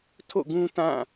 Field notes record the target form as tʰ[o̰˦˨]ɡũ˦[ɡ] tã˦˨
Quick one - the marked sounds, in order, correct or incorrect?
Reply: correct, incorrect: none

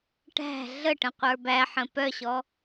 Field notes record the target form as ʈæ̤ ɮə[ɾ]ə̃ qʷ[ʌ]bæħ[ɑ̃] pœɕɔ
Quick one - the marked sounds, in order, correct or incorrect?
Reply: incorrect: ʈ, incorrect: ə˞, incorrect: ə̃

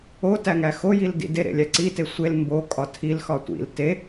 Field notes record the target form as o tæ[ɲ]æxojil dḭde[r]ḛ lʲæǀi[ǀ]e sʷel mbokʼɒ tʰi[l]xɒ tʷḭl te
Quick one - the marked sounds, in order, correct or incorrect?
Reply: incorrect: ŋ, incorrect: ɾ, incorrect: t, correct

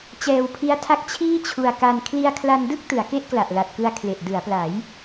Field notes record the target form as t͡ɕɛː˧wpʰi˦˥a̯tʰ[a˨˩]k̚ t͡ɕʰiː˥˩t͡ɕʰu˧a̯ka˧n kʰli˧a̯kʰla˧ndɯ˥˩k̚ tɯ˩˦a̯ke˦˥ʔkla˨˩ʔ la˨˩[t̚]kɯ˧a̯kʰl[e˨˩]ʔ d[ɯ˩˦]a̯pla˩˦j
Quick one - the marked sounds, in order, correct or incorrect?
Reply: incorrect: a˦˥, correct, correct, correct

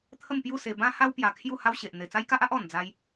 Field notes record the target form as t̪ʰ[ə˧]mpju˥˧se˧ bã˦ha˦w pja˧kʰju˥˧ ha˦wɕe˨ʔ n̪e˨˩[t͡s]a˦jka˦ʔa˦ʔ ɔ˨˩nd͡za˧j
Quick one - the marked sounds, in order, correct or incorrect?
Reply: incorrect: ə˥˧, correct

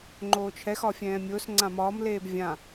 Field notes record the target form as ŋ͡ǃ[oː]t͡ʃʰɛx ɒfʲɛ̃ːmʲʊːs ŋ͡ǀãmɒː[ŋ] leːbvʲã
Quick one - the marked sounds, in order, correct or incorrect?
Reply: correct, incorrect: m

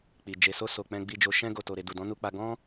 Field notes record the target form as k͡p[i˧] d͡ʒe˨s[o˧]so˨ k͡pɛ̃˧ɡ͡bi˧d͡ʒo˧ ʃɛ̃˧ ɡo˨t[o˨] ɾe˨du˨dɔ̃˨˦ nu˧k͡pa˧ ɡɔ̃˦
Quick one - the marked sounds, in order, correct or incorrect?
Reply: incorrect: i˨, correct, correct

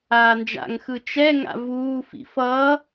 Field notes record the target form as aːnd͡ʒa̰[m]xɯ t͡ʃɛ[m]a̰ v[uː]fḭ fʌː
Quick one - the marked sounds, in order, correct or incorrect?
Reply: incorrect: ŋ, incorrect: ŋ, correct

